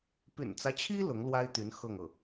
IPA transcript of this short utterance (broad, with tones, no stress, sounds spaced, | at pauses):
p y̰˨˩ n t͡s ä˦ t͡ɕʰ i˥ l ʊ˧˥ ŋ l w a˥ ɪ̯ t̪ y˧˥ n x ɤ˥˧ ŋ ɤ˥˩